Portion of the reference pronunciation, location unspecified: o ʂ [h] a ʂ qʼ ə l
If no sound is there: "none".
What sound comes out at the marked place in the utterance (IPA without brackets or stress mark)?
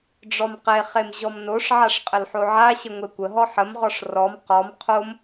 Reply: ʕ